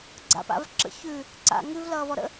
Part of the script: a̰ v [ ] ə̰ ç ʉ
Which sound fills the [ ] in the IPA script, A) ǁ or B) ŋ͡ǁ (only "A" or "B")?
A